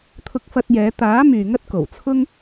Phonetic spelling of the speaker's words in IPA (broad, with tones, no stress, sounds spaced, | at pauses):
t̪ʰ ʊ˧ k̚ f ɐ˧ t̚ j ɛː˨˧ t̪ aː˨˥ m yː˨ ŋ ɐ˥ t̚ k o˨˩ w t͡sʰ ʊ˥ ŋ